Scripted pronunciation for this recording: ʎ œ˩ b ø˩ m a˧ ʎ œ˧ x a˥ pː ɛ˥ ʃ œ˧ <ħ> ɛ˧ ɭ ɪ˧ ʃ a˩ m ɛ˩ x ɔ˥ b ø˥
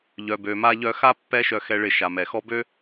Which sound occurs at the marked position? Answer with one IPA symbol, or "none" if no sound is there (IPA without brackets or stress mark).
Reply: x